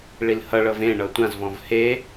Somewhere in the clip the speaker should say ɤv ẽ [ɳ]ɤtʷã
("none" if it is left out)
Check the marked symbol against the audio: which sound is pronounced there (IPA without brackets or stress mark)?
ɳ